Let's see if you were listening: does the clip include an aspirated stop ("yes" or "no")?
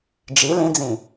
no